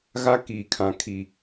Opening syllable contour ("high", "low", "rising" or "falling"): high